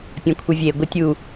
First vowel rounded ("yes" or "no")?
no